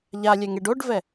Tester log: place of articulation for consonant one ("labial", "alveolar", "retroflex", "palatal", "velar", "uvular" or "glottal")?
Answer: palatal